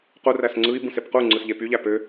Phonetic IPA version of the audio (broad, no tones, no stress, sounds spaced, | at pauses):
q u r æ s ŋ͡ǀ ɯ i̯ b ũ s e p q u ŋ͡ǀ ɯ s ʎ e p y ʎ æ p ø